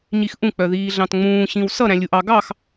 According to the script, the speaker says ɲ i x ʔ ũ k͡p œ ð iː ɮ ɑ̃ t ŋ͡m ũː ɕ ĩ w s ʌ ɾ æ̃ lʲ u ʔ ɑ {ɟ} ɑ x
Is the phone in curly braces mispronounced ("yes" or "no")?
yes